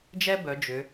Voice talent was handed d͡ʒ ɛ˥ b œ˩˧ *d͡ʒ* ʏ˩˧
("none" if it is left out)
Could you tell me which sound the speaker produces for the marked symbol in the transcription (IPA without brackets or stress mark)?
d͡ʒ